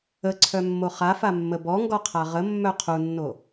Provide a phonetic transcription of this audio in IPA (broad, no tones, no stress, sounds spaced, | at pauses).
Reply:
ə ǀʰ œ mː o χ a f a mː ə b ɔ ŋ ɡ ɔ qʰ a ʁ ə mː œ qʰ u nː o